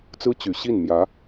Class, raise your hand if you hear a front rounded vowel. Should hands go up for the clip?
yes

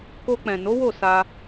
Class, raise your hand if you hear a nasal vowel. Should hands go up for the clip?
yes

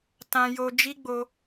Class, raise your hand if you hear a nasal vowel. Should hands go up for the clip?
yes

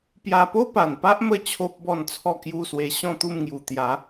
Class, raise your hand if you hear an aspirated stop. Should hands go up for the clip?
yes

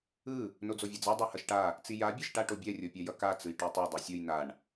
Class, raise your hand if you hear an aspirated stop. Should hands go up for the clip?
no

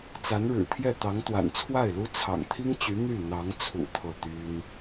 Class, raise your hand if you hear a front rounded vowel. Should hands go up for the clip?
yes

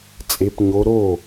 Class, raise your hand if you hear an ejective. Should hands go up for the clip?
yes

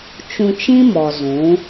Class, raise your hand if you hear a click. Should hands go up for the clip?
no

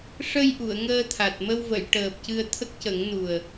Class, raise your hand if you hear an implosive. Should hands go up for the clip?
no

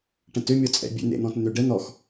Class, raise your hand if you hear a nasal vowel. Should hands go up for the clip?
yes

